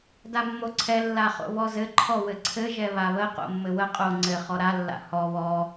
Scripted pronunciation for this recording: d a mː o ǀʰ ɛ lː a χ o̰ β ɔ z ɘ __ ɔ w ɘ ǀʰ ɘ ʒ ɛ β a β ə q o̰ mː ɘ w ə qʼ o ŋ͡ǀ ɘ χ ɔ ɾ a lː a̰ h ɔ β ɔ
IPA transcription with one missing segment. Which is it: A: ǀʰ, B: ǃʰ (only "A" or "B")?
B